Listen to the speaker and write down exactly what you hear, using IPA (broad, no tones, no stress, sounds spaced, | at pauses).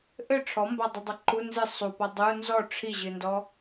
ʔ ɘ ʈ͡ʂʰ ɔ m b a dˤ i dˤ ɐ ǃ u n z ɨ sˤ u p ɔ dˤ u n z ɔ ʈ͡ʂʰ i ʑ ɨ n d ɔ